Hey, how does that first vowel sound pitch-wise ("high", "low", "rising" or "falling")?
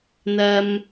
high